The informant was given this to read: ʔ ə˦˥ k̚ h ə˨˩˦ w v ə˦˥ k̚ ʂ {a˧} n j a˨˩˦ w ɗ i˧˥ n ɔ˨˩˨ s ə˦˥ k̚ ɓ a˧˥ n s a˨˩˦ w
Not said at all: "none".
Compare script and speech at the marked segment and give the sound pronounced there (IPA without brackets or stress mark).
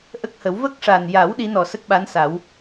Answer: a˨˩